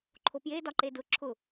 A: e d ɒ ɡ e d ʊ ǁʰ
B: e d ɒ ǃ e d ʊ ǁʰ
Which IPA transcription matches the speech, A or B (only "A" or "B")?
B